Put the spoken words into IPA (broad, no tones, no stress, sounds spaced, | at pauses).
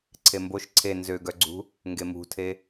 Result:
ǀʰ e m b o ʃ ǀʰ e n z ø ɡ œ ɡ͡ǀ ṳ | ŋ ɡ e m ṳ tʰ e